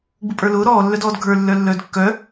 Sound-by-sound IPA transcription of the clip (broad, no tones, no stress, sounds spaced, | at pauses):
ɡ͡b u pʼ ə˞ l ʊː ɾ ɔː lː œ d ɔː d ɡʱ ə˞ lː œ lː œː d kː œ